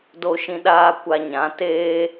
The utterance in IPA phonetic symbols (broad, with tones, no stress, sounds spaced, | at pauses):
d o˧ ʃ ĩ˧ ɗ aː˧ kʷ a˧ ɲ ã˨˦ t eː˦